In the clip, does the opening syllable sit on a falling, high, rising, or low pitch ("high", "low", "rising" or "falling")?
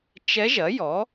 rising